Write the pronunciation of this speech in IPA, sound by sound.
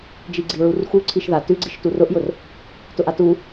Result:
d͡ʒ i ɡ͡ǀ i ɹ u r x u ǀʰ i ʃ ð a t ʉ ɡ͡ǀ i ʃ t u r ʊ ʔ j ʊ r | t ʊ ʔ a t u

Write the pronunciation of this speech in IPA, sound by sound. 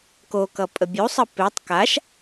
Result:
k o k ʌ pʼ ə bʲ u sˤ ə p e tˤ k a ʃ

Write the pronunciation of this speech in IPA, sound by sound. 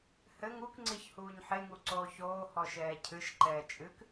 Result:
h ɘ ŋ u k ŋ͡ǀ i ç h uː ɲ ħ e ŋ u ǀ oː ç oː h ɔ ʃ ɛː cʰ ɨ ʃ ǃ ɛː t͡ʃʼ ɨ k

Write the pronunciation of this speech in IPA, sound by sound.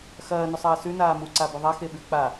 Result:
x ɐː n ɵ sˤ ɐː s ʉ n aː m u ǀ a b ɵ ðˤ a x e ɓ ʉ k͡p a

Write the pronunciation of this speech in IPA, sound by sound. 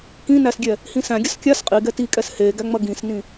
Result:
k ĩ n æ s ɡʲ ɛ | h ĩ s æ̃ ɡʲ ɐ s kʲ a s qʼ i ɡ ɛ t i kʼ ɛ s h e ɡ æ ŋ͡m ɐ ɡ ĩ s n ĩ

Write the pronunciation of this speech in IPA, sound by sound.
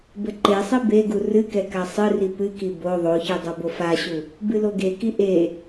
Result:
b ɘ ǃ e sˤ i b e ɡ u r ɨ k ɛ k a sˤ ɨ r i p ɨ k i b o ðˤ o ç ɨ dˤ o b o f a ɕ u | b ɨ l o ɡ e k i ʔ e

